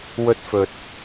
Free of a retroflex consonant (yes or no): yes